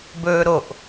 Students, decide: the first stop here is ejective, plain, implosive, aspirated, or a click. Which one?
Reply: plain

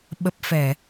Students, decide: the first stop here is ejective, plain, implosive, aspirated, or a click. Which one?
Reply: implosive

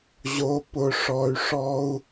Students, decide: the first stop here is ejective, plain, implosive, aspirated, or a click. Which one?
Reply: plain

